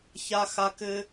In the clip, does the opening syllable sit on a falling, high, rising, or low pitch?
high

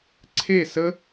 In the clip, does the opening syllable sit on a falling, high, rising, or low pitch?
falling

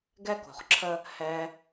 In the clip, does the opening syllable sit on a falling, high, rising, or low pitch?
high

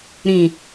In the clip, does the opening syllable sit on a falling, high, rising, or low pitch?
low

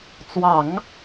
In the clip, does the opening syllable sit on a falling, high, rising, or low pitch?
low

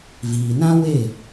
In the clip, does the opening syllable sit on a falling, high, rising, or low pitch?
low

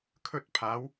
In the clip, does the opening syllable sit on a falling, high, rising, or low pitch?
high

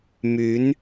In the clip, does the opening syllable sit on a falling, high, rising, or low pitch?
rising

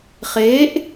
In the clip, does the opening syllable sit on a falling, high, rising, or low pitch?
rising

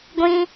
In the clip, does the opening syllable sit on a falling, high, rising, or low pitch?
high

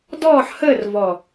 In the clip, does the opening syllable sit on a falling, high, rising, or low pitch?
falling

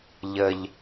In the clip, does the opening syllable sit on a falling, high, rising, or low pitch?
low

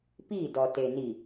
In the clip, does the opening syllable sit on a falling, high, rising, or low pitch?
falling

